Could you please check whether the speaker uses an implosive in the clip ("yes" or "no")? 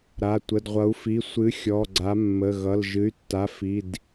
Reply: no